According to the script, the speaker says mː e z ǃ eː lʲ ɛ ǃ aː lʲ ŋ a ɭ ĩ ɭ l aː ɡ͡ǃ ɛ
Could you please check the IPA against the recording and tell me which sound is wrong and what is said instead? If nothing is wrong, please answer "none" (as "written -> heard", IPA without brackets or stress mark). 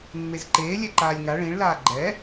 none